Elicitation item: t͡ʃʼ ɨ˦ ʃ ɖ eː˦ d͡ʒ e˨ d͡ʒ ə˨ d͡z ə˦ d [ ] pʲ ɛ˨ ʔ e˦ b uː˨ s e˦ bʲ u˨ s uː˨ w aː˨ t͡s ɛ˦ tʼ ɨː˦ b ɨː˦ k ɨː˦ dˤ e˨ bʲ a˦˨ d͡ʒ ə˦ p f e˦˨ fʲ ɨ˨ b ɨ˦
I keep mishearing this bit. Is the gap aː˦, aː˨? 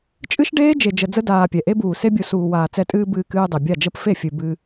aː˨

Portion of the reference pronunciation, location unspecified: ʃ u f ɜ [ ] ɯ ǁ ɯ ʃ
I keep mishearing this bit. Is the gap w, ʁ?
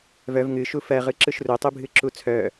ʁ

